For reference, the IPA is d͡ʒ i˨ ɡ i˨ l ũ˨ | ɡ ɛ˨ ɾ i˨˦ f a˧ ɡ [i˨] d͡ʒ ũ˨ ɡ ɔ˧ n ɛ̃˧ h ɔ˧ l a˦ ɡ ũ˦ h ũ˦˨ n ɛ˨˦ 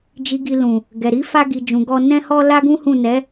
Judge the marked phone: correct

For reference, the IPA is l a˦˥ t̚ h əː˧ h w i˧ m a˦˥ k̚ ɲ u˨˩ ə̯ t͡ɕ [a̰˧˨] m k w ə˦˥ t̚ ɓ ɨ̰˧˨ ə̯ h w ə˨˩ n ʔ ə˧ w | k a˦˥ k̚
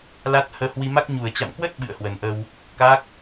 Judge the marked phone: correct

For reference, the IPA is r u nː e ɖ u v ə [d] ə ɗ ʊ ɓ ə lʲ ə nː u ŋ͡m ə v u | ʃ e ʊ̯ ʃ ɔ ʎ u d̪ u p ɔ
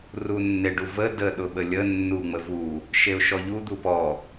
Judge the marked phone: correct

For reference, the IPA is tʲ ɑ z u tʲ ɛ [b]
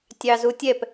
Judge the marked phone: incorrect: p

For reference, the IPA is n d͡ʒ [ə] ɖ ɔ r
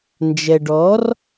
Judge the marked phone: incorrect: ɛ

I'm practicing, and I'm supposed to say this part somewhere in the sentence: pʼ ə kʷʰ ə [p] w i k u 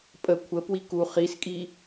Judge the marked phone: correct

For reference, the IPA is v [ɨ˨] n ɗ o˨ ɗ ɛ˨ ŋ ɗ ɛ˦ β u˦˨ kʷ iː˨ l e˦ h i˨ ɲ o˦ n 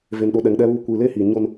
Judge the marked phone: incorrect: e˨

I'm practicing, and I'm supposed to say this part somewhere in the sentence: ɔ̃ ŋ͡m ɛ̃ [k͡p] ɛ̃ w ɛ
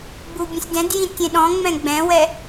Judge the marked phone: incorrect: ɡ͡b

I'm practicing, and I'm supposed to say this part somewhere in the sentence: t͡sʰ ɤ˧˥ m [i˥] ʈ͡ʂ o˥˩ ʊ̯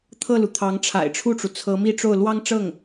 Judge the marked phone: incorrect: i˥˧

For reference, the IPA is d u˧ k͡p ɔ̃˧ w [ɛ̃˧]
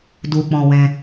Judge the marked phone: correct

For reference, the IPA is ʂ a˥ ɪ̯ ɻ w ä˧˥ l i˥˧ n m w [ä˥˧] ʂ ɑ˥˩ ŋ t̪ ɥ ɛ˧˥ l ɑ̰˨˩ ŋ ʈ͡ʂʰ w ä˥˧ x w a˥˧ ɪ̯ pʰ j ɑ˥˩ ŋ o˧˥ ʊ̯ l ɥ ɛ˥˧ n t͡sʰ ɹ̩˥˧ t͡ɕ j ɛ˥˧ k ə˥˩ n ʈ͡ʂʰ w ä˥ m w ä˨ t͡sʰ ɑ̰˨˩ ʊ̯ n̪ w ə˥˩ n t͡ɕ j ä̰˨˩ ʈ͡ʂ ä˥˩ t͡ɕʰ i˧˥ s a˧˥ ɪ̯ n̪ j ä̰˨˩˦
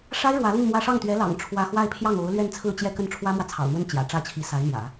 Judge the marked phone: correct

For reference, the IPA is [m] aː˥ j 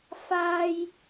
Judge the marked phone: incorrect: f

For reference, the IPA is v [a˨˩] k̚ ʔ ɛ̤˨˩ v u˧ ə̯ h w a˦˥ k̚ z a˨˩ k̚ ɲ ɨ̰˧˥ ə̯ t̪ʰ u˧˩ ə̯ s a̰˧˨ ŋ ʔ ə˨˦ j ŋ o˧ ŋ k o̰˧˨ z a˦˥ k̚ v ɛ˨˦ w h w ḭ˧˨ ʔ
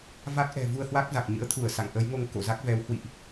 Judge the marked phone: incorrect: a˦˥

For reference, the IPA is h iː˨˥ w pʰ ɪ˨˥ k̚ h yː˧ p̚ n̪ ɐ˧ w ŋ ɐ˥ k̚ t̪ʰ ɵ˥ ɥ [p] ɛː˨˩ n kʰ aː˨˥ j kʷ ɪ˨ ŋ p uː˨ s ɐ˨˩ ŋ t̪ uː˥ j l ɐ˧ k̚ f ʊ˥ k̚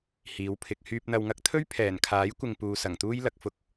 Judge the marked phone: incorrect: pʰ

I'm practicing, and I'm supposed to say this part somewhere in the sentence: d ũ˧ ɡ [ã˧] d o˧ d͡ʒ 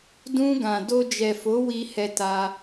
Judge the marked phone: incorrect: ã˨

